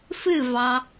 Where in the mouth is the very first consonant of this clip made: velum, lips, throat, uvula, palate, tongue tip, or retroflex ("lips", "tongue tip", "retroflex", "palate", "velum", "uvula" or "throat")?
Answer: lips